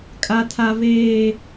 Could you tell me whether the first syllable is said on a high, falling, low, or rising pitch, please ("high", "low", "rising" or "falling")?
high